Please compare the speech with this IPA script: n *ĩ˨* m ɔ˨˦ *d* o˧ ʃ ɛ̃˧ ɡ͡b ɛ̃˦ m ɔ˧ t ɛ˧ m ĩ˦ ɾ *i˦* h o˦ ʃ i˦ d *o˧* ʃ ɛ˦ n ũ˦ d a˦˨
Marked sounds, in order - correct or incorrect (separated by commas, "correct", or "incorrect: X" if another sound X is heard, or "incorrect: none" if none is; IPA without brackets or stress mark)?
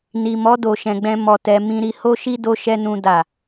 incorrect: i˨, correct, correct, incorrect: o˦